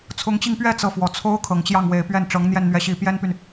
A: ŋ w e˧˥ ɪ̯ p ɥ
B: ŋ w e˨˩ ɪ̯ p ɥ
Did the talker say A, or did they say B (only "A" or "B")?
B